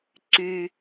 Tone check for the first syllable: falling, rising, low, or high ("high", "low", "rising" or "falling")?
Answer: high